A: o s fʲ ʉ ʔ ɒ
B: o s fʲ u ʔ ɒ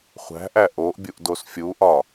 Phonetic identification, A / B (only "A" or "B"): B